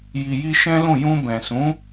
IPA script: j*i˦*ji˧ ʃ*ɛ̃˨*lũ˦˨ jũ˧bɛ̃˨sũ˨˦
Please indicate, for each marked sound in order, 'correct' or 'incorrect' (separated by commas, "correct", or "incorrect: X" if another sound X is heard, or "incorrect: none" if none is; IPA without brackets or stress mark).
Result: incorrect: i˨, incorrect: ɛ̃˦